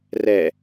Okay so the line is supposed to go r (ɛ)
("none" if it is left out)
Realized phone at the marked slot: ɛ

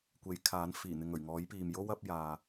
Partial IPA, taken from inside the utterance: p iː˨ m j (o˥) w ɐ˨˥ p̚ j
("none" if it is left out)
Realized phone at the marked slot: o˥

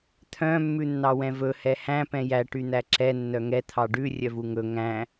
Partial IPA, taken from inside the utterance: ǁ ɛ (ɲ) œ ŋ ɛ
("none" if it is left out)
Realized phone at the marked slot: nː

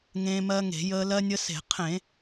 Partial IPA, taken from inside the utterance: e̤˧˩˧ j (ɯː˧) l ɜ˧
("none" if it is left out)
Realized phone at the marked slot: əː˧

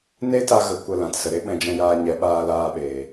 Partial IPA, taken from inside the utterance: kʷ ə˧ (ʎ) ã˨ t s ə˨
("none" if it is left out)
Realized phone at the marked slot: l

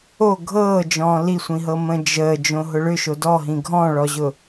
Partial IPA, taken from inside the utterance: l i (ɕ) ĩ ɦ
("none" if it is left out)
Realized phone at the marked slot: sʷ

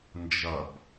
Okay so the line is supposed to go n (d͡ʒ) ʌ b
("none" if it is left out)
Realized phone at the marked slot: d͡ʒ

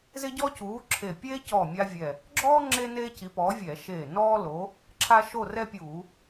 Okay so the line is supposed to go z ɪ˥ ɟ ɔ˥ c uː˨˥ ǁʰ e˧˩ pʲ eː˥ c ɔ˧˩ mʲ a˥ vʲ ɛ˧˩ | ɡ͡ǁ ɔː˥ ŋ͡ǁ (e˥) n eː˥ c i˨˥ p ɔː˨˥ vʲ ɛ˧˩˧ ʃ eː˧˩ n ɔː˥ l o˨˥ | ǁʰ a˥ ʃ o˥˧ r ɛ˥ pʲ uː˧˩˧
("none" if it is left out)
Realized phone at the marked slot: e˥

